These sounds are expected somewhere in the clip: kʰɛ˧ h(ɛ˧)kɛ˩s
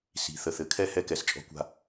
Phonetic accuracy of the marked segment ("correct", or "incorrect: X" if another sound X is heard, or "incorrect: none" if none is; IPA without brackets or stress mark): correct